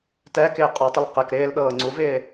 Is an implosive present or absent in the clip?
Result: present